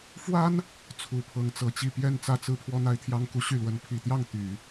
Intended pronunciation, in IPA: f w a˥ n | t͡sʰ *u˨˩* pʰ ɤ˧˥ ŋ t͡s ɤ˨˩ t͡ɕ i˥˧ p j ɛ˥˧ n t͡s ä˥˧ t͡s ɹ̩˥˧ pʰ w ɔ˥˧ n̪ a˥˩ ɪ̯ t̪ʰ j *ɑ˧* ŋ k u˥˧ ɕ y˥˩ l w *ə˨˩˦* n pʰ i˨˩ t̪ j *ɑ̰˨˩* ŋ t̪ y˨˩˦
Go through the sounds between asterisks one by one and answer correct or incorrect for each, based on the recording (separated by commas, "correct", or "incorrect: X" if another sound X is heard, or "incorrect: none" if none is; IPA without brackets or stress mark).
correct, incorrect: ɑ˥, incorrect: ə˧˥, incorrect: ɑ˥˩